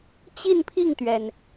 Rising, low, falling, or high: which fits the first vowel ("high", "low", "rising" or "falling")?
falling